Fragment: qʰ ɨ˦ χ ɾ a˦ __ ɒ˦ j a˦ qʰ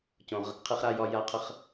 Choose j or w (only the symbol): j